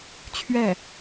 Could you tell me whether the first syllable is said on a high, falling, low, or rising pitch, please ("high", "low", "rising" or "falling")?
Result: falling